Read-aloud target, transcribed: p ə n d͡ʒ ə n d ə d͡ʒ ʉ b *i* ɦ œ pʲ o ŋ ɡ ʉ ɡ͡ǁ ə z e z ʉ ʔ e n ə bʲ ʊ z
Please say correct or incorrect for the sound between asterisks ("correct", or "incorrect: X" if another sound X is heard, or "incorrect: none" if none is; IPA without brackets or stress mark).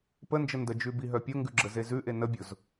correct